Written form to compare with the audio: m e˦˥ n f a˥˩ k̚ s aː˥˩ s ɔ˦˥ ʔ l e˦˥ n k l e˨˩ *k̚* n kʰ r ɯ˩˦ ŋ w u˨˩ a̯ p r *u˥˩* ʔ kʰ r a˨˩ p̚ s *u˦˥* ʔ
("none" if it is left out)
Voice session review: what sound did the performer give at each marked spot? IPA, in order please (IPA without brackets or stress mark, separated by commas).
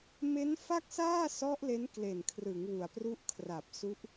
none, u˥˩, u˦˥